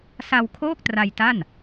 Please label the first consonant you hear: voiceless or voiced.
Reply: voiceless